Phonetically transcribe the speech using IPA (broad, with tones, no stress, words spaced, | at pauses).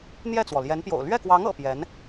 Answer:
n̪jɛ˥˩t͡swɔ˩ ljɛ˧˥npjo̰˨˩ʊ̯ lɥɛ˥˩kwɑ˧˥ŋ ɤ̰˨˩ pjɛ˧˥n